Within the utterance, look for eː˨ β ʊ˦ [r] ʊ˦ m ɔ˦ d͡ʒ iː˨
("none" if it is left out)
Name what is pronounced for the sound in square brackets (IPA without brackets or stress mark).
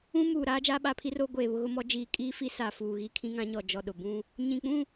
ɣ